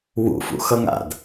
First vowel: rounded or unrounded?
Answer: rounded